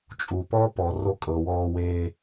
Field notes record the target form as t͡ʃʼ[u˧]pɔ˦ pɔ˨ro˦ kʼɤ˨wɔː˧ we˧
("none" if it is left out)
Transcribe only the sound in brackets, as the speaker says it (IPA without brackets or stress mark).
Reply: u˨